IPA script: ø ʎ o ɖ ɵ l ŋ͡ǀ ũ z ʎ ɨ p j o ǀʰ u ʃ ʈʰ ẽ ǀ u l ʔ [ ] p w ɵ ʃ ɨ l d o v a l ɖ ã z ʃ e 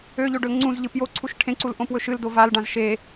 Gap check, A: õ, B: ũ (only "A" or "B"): A